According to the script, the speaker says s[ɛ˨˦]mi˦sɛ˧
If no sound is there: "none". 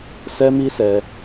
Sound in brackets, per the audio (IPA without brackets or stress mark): ɛ˦